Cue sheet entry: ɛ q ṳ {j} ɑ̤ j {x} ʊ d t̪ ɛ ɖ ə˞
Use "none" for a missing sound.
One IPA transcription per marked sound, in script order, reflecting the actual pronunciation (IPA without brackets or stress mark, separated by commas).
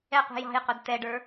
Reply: j, q